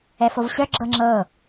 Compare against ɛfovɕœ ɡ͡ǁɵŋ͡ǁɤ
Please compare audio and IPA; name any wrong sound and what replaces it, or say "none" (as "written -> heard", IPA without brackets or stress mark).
ɵ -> ɤ